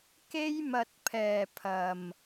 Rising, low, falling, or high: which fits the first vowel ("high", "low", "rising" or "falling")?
high